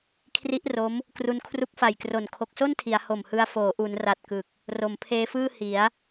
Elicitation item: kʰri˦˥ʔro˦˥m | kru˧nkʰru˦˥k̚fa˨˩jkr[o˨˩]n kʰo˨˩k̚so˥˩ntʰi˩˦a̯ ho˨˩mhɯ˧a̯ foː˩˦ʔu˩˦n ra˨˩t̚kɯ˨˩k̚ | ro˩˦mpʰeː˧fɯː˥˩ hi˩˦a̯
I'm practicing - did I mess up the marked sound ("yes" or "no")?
no